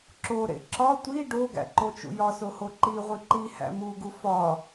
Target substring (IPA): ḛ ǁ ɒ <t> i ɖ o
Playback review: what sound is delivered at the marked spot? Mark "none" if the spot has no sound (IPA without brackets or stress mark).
tʷ